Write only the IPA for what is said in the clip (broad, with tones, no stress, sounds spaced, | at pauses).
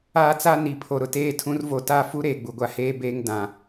aː˦ t͡s a˦ n i˨ pʰ o˨ ɾ ʊ˨ t eː˦ tʰ ũ˨˦ r v o˨ t a˦˨ f u˦ ɾ eː˨ ɡ͡b u˨ ɡʷ a˦ h eː˦ b eː˦ ŋ d ã˨